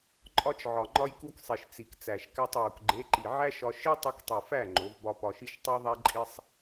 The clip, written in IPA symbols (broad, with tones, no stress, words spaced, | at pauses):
ǃʼɒ˧t͡ʃʕɒ˨ ŋ͡ǃɒ˧jku˧ksˤi˨ʃ t͡si˨k t͡sæ˨ʃkæ˧tˤju˨k ɡ͡ǃe˨˦ǃi˨ ʕæ˦ʃɒ˧ ʃi˦tˤu˧ktˤi˨fæ˦˨ ŋ͡ǃo˨˦vbɒ˦ pɒ˧ʃi˦ʃ tˤo˦ðˤæ˦ǃʼi˦sˤ